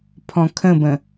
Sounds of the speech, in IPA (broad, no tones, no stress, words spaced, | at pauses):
pʰɔ̃kʰə̃bə̃